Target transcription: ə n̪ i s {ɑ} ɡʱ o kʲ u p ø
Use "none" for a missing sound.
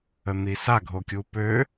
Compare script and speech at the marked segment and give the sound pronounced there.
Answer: a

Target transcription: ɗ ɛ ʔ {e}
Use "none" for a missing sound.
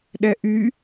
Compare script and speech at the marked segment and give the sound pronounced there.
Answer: y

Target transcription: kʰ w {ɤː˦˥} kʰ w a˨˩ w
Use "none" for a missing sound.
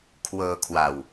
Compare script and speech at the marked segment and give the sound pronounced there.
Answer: ɤː˧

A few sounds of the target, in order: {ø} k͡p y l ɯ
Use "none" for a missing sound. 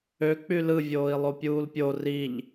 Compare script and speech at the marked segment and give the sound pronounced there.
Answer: ø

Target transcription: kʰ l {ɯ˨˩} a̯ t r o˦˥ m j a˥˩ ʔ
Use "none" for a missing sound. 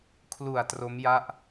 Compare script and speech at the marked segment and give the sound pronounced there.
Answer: u˨˩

